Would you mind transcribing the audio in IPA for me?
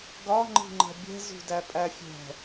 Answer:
ɡɒ ŋ͡ǃi̤ŋ͡ǃɛ̤bʲɛ̤ zṳdæpʼæfʲɛ̤

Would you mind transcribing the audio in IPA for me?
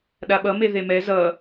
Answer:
ɗaɓʌ meðemɛ zʌ

